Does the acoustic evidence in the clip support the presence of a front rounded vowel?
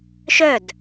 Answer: yes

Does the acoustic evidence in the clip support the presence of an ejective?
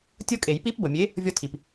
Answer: yes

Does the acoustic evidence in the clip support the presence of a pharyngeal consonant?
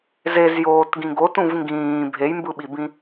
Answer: no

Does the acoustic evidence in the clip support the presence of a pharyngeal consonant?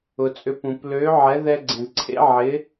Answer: yes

